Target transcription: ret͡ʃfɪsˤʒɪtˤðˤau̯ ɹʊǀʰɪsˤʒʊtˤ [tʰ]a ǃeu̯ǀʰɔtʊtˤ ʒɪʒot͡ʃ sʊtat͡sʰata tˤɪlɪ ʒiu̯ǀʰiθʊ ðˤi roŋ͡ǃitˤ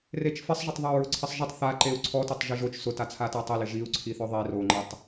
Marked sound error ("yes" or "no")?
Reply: yes